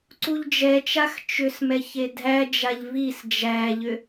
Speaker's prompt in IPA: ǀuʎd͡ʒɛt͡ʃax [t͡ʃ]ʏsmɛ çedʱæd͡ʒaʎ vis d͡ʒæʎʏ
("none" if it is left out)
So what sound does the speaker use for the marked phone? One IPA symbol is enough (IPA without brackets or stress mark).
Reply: t͡ʃ